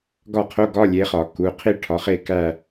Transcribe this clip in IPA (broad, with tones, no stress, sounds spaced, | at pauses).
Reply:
ɡ ɒ˥˩ qʰ o˧˥˧ ɡ ɒ˧˥˧ lʲ e˨˦ χ ɒ˨˩˦ k u˩˧˩ qʰ i˥˧ ʈʰ ɒ˨˦ χ e˥˧ k æ˥˧